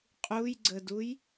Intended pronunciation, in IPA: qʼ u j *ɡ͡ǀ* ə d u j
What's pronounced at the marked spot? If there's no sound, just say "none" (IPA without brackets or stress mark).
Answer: ɡ͡ǀ